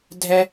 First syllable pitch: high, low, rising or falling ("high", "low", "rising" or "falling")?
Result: high